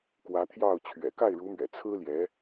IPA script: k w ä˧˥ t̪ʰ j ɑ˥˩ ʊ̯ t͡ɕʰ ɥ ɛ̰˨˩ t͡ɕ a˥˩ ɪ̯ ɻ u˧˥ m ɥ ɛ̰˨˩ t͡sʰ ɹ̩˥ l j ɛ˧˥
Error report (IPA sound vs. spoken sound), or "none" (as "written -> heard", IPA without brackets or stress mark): t͡ɕ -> k